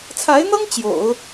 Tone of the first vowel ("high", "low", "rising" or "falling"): rising